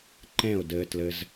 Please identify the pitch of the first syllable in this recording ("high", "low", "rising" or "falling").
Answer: falling